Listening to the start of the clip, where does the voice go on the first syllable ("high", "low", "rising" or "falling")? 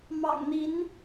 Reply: low